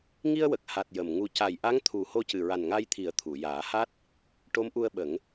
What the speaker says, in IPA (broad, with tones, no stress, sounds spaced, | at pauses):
ŋ i˧ ə̯ w ə˨˩ k̚ h a˨˩ t̚ j ə˨˩ m ŋ u˧ c a˨˩ j ʔ a˧˥ ŋ t̪ʰ u˨˩˦ h o˧ c ɨ˨˩ ɹ a˨˩ n ŋ a˧ j t̪ʰ i˨˩˦ ə̯ t̪ʰ u˨˩˨ j aː˨˩˦ h a˦˥ t̚ | ʈ o˧˥ m ʔ u˧ ə̯ ɓ ə˨˩˦ ŋ